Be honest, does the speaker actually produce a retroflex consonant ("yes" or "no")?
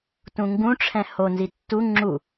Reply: yes